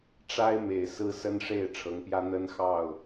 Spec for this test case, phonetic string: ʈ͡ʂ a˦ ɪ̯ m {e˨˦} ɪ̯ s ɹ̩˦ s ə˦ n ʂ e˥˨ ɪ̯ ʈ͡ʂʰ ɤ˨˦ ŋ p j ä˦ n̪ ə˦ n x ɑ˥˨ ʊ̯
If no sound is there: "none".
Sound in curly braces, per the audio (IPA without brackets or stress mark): e˨˩